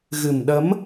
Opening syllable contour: low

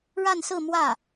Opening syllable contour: falling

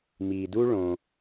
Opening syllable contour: low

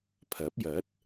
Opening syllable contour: rising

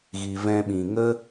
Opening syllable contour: low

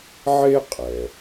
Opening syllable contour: high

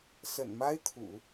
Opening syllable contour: low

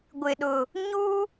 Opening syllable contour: low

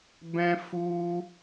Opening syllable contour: high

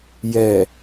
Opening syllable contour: low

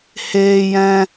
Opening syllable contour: high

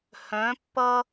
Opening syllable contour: rising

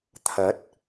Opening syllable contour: rising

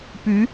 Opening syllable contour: rising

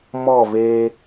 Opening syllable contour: falling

